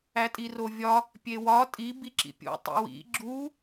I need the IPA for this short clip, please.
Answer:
æ tʼ i r o vʲ ɒ | pʲ e w ɒ tʼ i b i ǁ ḭ pʲ ṵ tˤ ḭ w ḭ ɡ͡ǁ u

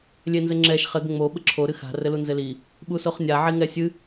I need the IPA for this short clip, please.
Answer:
lʲ e n z ɘ ŋ͡ǁ ɛ ʃ χ ɘ ɡ ŋ͡m o ɓ ɘ ǁʰ o ɾ ɨ x a̤ r ɘ l u n z ɘ l i | ɓ u s o χ nʲ a ʕ i ŋ ɛ sʲ ɨ

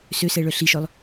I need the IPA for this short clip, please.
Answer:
s ø s ɛ ɭ œ ɬ i ʃ œ lˠ

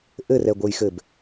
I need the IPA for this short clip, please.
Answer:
ʔ ɘ r ɛ ɡʷ ə˞ j x ɘ b

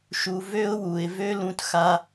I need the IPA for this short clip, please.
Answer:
ʃ u˨ v ø˦ ʊ̯ w u˨ ɪ̯ v ø˦ l ũ˧ t x a˦

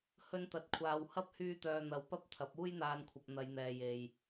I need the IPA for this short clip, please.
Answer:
h ɵ˧ n t̪ ɐ˨˥ t̚ kʷʰ aː˨ w h ɐ˥ p̚ h yː˧ t̪ œː˨ n̪ ɐ˨˥ w p ɐ˥ p̚ t̪ʰ ɐ˨˥ p̚ uː˥ j n̪ aː˧ n kʷʰ ɐ˨ p̚ n̪ ɐ˨˧ j n̪ ɛː˨ j e˨ j

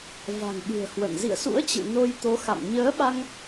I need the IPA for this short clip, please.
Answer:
v a̤˨˩ ŋ ɓ ɨ̤˨˩ ə̯ h w ə̰˧˨ n z ḭ˧˨ ə̯ s ṵ˧˥ ə̯ t͡ɕ ɨ̰˧˨ n o˧ j t̪ o˨˦ x a̰˧˨ m ɲ əː˨˦ ɓ a˧ ŋ

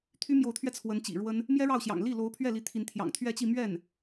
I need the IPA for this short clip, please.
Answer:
t̪ʰ y˥ m j o˧˥ ʊ̯ t̪ʰ ɥ ɛ˧ t͡sʰ w ə˧˥ n t͡ɕ ḭ˨˩ ɻ w ə˥ n | m j ɛ˥ ɻ ɑ˥˩ ʊ̯ ɕ j ɑ̰˨˩ ŋ l i˥˩ l o˧˥ ʊ̯ pʰ ɥ ɛ˥˩ l i˧˥ t̪ʰ i˧˥ n t̪ʰ j ɑ̰˨˩ ŋ t̪ʰ ɥ ɛ˥˧ t͡ɕ i˥˧ m ɥ ɛ˥˩ n

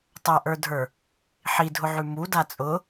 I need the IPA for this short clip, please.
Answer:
tˤ a ʔ ə˞ dʱ ə˞ | ħ i dʱ ʊ ʕ ʉ m u d a t͡sʼ ʊ

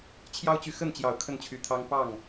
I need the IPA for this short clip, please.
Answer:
t͡ɕʰ j ɑ˦ ʊ̯ t͡ɕ y˨ x ə˥˨ n t͡ɕ j ɑ˨˩ ʊ̯ kʰ ə˥˨ n t͡ɕʰ y˨˦ t̪ʰ ɑ˦ ŋ p ɑ˥˨ ŋ

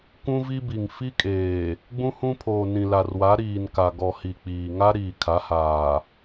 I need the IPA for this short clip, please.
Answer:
kʷ ũ˦ v i˦ b i˨ ŋ f i˦ kʼ eː˨ | ɡ͡b ũ˦ h ũ˦ pʰ oː˨ n ĩ˨ l a˨ r w a˨˦ ɾ iː˨ n k a˨ ɡ ɔ˨ h i˨ k͡p iː˨ ŋ a˦ ɾ iː˨ kʰ a˨˦ h aː˨

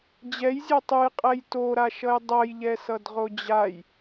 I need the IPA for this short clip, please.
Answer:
d͡ʑ ɛ j zʲ ɛ tˤ ɯ j qʼ ɛ j t o ɾ a ʃ ʌ j dˤ ʌ j ʎ ɛ s ʌ d ʁ o d͡ʑ a j

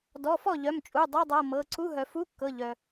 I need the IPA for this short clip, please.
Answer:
d ɔ˩˧˩ f ɔ˥˩ ʎ œ˩˧˩ m t͡ʃʼ u˩˧˩ dˤ ɤ˧˥˧ dˤ ɤ˩˧˩ m ɤ˩˧˩ ǀ u˧˥˧ ɦ œ˩ f u˧˥˧ kː ɤ˩˧˩ ʎ œ˩

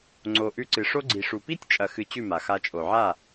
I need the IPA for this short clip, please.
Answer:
ŋ͡ǀ o˨ ʔ ʉ˧ ǀ ɨ˨ ʂ o˧ ɡ͡ǀ i˨ ʂ u˨ p i˦ tʲ t͡ʃʼ ɐ˧ x ɨ˧ t͡ɕ ʉ˦˨ m a˨ x a˧ t͡ʃʼ o˨ ʕ a˦˨

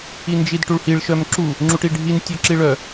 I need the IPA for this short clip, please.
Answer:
i n d͡ʒ i d ʈ u ɭ h i ɭ ʃ œ m ǁ u | ŋ͡ǁ u ʈ i ɖʱ i n tʲ œ ǁ i ɭ œ

